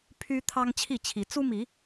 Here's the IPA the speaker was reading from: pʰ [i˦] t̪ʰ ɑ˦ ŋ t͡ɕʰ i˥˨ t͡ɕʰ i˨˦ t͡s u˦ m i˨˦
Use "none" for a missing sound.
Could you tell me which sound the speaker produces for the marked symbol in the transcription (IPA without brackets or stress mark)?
y˦